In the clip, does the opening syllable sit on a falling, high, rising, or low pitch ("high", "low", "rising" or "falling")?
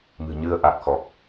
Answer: low